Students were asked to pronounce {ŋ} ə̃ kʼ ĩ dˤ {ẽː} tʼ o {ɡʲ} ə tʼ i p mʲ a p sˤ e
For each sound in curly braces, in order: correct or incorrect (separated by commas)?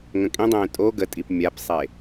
correct, correct, incorrect